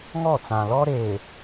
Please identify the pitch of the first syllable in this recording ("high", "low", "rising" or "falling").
falling